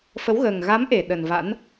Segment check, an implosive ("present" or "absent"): present